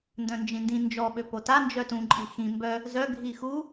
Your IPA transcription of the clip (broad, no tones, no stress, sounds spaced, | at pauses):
n d œ̃ n d͡ʒ ĩ n d ĩ n d͡ʒ ɔ ɓ ø p o t a n d͡ʒ œ t ũ ǃʼ i x ĩ m b œ | z œ ɡʱ i x u